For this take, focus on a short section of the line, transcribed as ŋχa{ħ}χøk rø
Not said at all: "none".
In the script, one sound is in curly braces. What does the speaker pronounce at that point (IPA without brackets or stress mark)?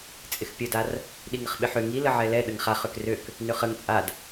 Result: none